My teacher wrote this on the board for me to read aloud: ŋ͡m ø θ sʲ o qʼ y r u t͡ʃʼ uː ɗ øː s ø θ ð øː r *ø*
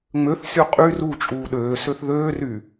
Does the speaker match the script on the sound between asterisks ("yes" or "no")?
no